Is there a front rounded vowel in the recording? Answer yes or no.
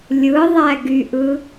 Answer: yes